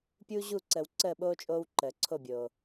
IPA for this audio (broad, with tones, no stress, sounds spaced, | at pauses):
pʲ uː˦ ʑ u˦˨ ǀ əː˨ w ǀ əː˦˨ ɓ oː˦ t͡ʃʼ oː˦ w ǃ əː˨ ǀʰ o˦˨ bʲ oː˨